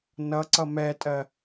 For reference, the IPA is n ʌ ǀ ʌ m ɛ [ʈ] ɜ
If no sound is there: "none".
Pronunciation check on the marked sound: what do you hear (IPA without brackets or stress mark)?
tʼ